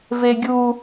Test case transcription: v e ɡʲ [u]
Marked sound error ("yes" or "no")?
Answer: no